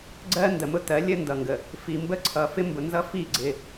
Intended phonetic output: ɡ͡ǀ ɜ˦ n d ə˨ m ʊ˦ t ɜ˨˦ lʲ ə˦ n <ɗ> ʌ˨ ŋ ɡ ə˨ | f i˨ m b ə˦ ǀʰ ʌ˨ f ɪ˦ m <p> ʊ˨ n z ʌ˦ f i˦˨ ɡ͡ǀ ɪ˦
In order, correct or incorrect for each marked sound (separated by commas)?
incorrect, incorrect